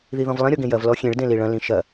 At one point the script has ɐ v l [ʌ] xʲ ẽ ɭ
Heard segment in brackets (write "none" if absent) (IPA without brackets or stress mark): ɔ